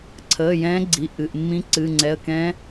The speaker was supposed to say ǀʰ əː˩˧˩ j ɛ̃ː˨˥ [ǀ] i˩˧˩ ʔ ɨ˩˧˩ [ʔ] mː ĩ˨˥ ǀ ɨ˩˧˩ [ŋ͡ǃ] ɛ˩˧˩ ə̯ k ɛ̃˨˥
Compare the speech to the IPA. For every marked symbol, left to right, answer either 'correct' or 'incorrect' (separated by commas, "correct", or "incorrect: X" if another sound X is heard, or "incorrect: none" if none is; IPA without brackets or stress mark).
incorrect: ɡ͡ǀ, correct, incorrect: ŋ͡ǀ